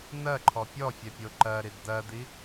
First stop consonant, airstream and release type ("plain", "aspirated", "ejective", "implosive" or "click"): click